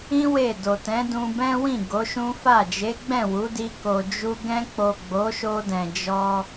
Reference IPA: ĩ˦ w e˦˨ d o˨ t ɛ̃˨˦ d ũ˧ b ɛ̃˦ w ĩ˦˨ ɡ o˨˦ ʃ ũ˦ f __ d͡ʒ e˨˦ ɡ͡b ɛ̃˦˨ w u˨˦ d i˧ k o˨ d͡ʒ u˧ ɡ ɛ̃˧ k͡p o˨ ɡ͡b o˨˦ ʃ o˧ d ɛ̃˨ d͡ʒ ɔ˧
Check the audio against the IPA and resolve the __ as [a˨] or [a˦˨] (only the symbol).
a˦˨